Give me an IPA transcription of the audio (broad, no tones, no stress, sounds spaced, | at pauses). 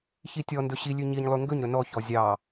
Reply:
ç i tʲ ɔ n d ɵ ɕ i lʲ ʉ ɲ i ɲ lˠ ʉ ŋ ɡ ɵ ɲ ɾ ɵ n ɔ ç ɔ zʲ ɑ